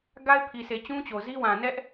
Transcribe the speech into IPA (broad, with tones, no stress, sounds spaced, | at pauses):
ɡ a˦ ɪ̯ pʰ i˨ s e˨ t͡ɕ ũ˦ t͡ɕ o˨ z i˦ w ã˨ n ɛ˦ ʔ